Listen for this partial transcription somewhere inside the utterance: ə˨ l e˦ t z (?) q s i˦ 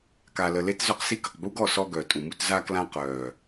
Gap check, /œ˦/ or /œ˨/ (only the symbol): œ˦